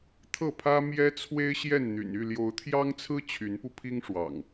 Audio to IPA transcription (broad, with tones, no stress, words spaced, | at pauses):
t̪ʰɤ˥˨pʰä˦ mjɛ˦t͡sʰwe˦ɪ̯ ɕjɛ˥˨nn̪y̰˨˩n y˥˨ljo˨˦ʊ̯t̪ʰjɑ˦ŋt͡sʰɹ̩˦ t͡ɕʰy˨˦npu˧pʰi˦ŋʂwɑ̰˨˩ŋ